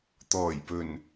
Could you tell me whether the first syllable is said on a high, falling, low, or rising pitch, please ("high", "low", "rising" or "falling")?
low